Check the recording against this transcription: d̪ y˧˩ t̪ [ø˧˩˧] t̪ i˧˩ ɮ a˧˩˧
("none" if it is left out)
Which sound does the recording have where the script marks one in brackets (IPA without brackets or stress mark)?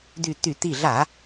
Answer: y˧˩˧